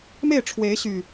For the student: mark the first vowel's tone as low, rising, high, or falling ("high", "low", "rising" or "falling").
falling